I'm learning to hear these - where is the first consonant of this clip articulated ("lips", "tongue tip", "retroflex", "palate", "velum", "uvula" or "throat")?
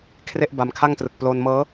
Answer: velum